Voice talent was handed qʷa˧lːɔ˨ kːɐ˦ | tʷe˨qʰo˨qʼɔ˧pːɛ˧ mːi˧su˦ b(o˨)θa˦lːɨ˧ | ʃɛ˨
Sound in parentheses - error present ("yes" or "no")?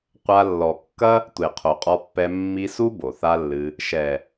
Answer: no